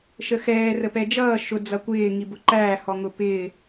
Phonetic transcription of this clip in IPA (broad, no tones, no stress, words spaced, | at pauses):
ʃəxɛː rəpɛd͡ʒʌː ʃʊ d͡zʌkʷɪː ŋibʊǃæː hɔŋʊpɪː